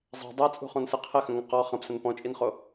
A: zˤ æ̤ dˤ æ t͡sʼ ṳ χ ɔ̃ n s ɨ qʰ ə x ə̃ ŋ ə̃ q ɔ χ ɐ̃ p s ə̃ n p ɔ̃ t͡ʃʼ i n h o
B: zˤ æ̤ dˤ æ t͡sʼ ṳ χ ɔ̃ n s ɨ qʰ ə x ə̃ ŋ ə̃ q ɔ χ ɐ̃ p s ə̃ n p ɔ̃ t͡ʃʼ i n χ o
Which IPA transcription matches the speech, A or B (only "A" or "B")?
B